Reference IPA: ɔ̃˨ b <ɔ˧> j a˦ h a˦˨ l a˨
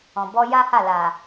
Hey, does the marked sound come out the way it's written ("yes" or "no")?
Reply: yes